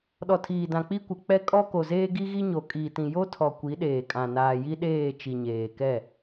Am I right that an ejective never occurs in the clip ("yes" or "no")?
no